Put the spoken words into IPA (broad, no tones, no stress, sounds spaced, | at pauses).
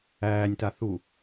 æː nʲ t a θ u